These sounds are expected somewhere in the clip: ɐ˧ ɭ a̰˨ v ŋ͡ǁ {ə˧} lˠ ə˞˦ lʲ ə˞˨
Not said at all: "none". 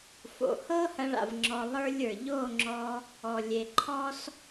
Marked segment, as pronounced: ɔ˧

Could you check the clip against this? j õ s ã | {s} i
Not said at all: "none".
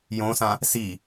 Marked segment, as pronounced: s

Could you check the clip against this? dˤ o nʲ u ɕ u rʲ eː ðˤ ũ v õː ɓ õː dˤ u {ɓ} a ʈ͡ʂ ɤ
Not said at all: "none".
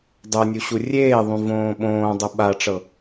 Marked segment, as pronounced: ɓ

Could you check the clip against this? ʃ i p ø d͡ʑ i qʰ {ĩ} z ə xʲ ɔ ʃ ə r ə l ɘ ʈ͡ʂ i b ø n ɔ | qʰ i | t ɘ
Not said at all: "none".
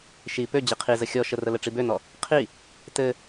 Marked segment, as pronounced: i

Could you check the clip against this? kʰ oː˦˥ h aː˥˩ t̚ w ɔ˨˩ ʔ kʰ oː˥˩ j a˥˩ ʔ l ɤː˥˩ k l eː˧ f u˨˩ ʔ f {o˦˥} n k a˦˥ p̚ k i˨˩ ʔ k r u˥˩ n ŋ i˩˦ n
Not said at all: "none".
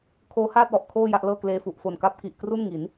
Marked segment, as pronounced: o˨˩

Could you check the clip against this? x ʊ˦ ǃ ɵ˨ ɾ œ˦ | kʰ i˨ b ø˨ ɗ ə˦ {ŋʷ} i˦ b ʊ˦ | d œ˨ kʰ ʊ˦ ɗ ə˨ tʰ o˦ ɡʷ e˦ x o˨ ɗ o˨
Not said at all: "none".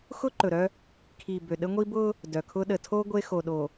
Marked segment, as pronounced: ŋʷ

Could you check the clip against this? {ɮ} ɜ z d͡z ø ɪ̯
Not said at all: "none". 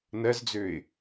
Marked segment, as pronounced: n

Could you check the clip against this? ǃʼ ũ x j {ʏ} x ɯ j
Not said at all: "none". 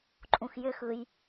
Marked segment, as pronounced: ʏ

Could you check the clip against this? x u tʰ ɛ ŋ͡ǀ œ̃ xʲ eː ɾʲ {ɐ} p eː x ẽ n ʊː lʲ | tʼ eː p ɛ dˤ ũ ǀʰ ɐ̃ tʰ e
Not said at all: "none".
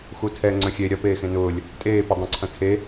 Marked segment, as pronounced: ɐ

